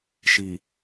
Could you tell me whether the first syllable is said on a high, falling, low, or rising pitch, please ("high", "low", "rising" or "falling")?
low